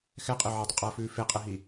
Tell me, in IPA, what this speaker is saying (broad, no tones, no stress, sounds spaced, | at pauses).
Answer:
x ɛ qʼ e ʕ ɪ dˤ ə qʼ ɐː f ʉː f e qʼ ɛ ɦ i